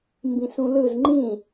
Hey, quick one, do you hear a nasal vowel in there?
yes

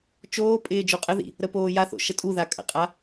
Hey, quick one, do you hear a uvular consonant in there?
yes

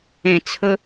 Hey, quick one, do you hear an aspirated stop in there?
yes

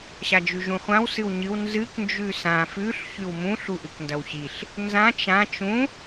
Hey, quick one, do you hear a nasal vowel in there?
yes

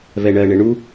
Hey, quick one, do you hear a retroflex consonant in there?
yes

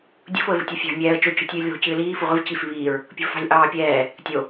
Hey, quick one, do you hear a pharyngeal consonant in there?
no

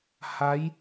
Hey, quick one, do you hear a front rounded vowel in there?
no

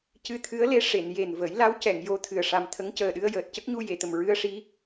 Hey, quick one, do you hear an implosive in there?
yes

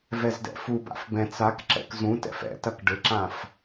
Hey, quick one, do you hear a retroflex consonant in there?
yes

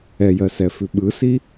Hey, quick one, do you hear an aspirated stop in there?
no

